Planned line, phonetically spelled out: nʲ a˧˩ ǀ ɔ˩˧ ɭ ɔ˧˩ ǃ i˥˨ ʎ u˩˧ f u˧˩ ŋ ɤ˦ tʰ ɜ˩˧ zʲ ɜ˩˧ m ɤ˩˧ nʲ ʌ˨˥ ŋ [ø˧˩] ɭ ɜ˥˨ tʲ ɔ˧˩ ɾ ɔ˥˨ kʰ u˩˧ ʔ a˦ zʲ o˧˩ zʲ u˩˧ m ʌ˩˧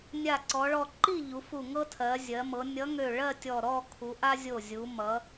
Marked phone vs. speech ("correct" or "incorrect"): correct